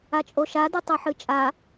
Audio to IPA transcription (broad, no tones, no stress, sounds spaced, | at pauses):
a t͡ʃʼ o ʃ a d ɨ tˤ ɵ ħ ɨ t͡ʃʼ a